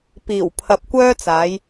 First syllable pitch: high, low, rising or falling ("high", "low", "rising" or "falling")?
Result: low